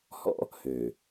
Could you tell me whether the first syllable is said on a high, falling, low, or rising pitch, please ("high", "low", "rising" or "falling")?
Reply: high